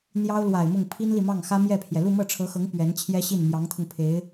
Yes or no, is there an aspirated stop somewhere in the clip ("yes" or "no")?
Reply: yes